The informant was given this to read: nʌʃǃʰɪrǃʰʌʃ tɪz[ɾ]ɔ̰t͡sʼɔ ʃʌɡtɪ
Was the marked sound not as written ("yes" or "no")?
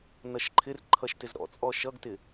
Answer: no